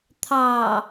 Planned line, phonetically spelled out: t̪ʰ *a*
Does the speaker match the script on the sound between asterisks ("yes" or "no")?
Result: no